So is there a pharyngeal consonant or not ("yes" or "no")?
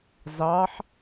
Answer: yes